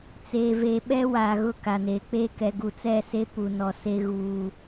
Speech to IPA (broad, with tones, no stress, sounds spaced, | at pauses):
t͡s eː˨ v e˨ ɓ ɛ˦ w aː˨ ɣ ʊ˦˨ k a˨ n eː˨ k͡p eː˦ k ɛ˨ ɡ u˨ t͡s ɛ˦˨ s e˦ p u˨ n ɔ˨ s e˦ ɣ uː˦